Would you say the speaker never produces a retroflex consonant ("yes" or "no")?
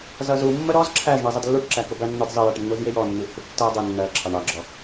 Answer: no